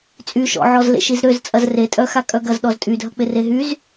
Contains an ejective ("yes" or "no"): yes